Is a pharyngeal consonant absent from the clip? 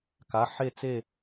no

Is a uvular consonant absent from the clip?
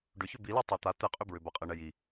no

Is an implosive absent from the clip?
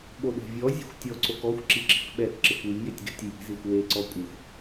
no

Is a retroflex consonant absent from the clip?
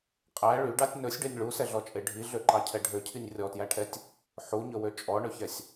no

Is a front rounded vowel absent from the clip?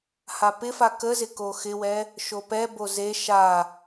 yes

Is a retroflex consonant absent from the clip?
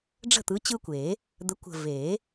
no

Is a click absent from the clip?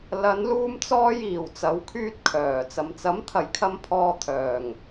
yes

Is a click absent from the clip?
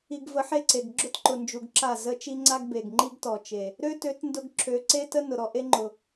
no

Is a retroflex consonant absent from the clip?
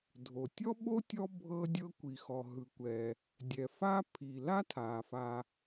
yes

